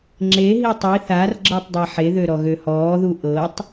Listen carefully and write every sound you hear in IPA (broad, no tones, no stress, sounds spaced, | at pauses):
ŋ͡ǁ e ɦ i tˤ i θ a r ɡ͡ǁ ɤ tˤ dˤ e ħ e ð ø ɾ ɔ ɣ ø h ɔː ð u ʔ ɤ tˤ